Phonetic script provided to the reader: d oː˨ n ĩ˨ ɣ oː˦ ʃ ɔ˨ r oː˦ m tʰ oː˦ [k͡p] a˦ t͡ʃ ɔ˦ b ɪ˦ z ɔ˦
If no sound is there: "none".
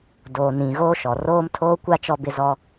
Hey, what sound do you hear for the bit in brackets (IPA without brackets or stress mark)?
kʷ